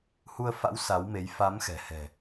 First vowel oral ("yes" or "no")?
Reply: yes